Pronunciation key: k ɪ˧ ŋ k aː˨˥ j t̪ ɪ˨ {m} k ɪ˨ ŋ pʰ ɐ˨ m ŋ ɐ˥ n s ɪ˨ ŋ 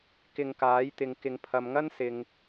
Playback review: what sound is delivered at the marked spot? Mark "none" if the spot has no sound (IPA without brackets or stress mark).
ŋ